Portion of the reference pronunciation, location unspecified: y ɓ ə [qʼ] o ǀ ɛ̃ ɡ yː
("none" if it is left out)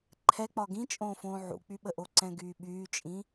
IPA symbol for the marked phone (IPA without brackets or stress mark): ʔ